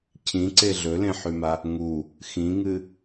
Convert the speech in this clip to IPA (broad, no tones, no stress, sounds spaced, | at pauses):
cʰ ĩ ǀ e ɮ ɵ l ẽ ħ ʉ m a | ŋ u | x ĩ ŋ ɨ